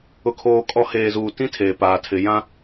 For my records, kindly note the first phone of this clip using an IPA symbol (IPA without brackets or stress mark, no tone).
ʊ